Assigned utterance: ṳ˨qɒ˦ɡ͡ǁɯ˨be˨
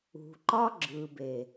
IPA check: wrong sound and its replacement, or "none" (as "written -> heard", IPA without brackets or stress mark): q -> ǃ